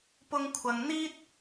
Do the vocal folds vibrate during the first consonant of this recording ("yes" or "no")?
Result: no